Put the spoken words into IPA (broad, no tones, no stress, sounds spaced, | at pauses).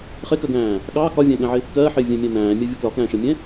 χ ɪ k ɜ ɡ æ̃ː | ɠ ɑ k ɒ vʲ æ̃ ɠ ɛ̃ ʕ ɪ | k ɜː ħ ɪː vʲ æ̃ mʲ æ̃ n æ̃ː mʲ ɜ vʲ ʌ k l ɒ k æ̃ː ʃ ɜ mʲ ɛ̃